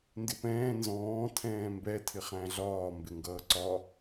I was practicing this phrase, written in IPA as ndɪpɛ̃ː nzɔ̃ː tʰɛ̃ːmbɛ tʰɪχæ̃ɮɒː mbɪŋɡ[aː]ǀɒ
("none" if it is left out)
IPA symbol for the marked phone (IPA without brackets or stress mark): ʌː